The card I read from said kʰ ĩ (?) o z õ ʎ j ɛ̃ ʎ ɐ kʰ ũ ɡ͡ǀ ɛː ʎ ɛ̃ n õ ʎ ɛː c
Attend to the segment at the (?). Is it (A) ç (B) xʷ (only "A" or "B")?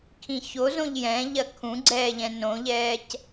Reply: A